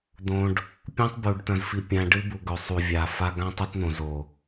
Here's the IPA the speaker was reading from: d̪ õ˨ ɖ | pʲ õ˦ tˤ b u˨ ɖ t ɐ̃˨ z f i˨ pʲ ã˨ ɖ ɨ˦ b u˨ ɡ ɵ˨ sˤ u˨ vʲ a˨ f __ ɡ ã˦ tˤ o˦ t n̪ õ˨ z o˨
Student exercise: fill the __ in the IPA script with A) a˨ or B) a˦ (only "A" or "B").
B